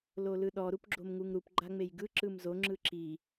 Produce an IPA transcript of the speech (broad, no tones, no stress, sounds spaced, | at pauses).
l o l ɯ ɗ ɔ ɾ u p ɡ͡ǁ o m ŋ u ŋ ɾ u p ɡ͡ǃ a ŋ͡m e j ɡ ɯ ǁ ɯ m z o ŋ͡ǁ ɯ ǁ i